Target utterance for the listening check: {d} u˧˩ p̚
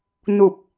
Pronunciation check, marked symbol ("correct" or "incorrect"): incorrect